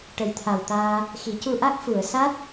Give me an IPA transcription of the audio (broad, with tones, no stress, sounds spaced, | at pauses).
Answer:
ʈ ə˨˩ j t̪ʰ a˨˩ w t̪ aː˧ | x i˨˩˦ c u˧ ʔ a˦˥ k̚ f u˨˩˨ ə̯ s a˦˥ t̚